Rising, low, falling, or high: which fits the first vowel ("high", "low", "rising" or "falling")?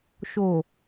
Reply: low